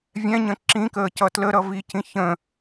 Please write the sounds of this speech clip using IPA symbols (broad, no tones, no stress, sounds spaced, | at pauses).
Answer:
vʲ ɛ̃ ɲ ə̃ ǁ ĩ k əː c ʌ t l ə ɾ ʌ v i c ĩ ç ə̃